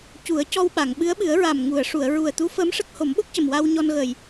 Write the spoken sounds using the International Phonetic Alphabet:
cu˨˩˦ə̯cɔ˧wɓa˨˩˨ŋ ɓɨ˧˥ə̯ɓɨ˨˩˦ə̯ɹa˨˩m ŋu˨˩˨ə̯ʂu˨˩˨ə̯ ɹu˨˩ə̯t̪u˧˥ fəː˧˥mʂə˦˥k̚ ho˨˩˦mɓo˦˥k̚cə˨˩m wa˧w ɲɔ˧nɣəː˨˩j

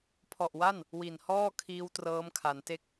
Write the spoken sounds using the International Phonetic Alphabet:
pʰɔ˨˩ʔwa˥˩n | wi˨˩nhɔː˥˩ kʰiː˦˥wtrɤː˦˥mkʰa˩˦nte˥˩k̚

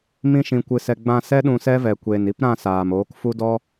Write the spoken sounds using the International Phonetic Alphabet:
mĩ˧ʃĩ˨ kʷɨ˨sɛ˨ ɡ͡bã˧sɛ˦ɗũ˧ sɛ˦vɛ˨kʷeː˨n i˦p ɾã˦˨ saː˨m oː˨˦kfu˦dɔ˦

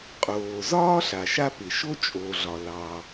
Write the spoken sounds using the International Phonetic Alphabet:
qʼoː˩zɒː˥ ɬa˩ʃa˥pɪ˩ ʃo˥t͡ʃʼo˩ɮɒ˩ lɑ˩

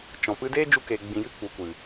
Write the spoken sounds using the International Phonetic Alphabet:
t͡ʃɔ̃˨ pɨ˧deː˦d͡ʒu˧ keː˧ɡ͡bĩ˧jɨ˦ k͡pu˨kʷɨ˨

